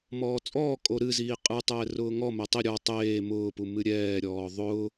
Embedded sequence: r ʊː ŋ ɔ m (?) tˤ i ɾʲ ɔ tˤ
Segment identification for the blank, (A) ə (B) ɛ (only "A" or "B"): B